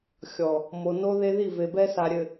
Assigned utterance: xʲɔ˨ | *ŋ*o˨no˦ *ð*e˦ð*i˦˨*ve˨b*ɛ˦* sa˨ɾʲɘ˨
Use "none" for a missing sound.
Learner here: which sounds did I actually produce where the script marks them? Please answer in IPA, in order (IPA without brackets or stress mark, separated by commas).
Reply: m, ð, i˦˨, ɛ˦